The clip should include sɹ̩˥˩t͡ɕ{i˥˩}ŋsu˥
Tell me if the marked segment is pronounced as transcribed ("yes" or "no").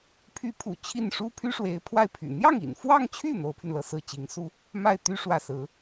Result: no